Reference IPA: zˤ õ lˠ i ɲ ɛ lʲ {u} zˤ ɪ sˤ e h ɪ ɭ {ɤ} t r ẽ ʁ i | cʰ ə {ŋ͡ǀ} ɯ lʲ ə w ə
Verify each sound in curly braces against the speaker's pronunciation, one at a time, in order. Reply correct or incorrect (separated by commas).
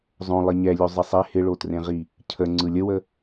correct, incorrect, correct